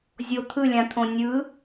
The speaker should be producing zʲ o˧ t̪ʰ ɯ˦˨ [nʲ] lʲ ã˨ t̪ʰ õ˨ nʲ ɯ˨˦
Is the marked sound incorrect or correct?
incorrect